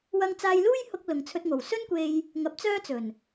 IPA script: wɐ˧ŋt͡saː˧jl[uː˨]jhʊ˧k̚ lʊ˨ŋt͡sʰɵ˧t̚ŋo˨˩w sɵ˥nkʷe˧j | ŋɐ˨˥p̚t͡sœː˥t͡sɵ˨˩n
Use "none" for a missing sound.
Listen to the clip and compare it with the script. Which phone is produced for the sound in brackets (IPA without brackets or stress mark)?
uː˥